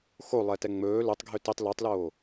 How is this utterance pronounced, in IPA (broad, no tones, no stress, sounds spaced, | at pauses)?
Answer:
x o lˠ ɛ t ɛ ŋ͡m ɵː l ɵ tˤ ɡʱ ø t i tˤ l ø tˤ l oː